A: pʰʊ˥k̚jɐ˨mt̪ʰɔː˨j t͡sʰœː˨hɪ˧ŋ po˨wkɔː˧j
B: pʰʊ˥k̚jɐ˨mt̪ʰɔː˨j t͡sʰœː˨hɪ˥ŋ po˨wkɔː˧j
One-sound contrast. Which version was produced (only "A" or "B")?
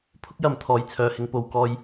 A